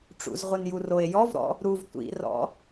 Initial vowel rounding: rounded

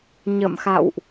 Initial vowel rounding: unrounded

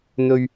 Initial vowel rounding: rounded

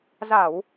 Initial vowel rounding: unrounded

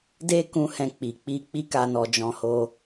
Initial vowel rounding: unrounded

